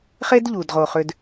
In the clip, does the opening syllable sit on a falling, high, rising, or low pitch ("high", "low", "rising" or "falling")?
high